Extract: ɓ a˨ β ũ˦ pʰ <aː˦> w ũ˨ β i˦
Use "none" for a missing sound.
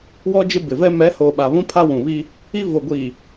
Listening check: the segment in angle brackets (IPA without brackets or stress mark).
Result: a˦